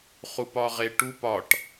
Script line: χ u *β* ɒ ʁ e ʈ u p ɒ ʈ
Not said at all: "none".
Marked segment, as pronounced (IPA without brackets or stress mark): p